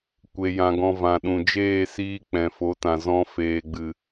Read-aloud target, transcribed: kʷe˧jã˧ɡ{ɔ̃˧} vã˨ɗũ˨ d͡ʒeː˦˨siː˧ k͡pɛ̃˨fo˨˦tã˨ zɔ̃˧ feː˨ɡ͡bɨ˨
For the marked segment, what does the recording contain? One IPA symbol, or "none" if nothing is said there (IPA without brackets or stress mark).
ɔ̃˧